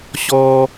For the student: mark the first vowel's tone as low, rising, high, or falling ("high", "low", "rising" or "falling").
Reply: high